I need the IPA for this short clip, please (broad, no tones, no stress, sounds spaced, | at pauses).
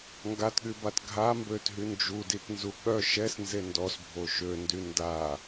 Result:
ŋ ɡ a t ɠ y b a t ɡʱ a m b ø t ɦ y n d͡ʒ u d i t n z u ɠ œ ʃ ɛ s n z e n d ɔ s bʱ o ʃ ø n d y n d a